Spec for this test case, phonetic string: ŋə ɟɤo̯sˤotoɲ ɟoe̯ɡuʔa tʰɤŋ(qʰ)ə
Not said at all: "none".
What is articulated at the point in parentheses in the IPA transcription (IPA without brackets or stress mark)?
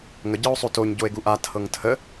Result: tʰ